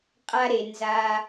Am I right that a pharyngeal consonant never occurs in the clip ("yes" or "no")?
yes